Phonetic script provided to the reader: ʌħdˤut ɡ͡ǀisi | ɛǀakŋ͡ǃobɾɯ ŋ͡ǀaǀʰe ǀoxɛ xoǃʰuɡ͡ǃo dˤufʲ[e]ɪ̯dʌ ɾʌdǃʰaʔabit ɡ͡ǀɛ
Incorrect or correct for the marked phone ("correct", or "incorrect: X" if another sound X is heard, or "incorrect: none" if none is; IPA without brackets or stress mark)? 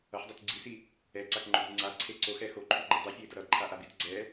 incorrect: ɛ